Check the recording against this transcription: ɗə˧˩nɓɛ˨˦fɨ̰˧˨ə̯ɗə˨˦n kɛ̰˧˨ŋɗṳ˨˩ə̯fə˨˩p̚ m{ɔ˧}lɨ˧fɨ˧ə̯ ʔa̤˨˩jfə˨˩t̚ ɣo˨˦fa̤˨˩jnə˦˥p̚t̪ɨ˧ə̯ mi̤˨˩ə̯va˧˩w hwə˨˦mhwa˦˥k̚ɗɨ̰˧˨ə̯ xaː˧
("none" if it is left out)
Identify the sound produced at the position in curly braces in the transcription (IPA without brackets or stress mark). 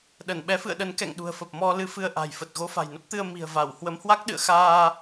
ɔ˧